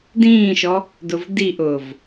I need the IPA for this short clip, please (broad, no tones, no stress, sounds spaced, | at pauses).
d ĩː ʃ ɔ | d ʊ v d i ʔ ʊː v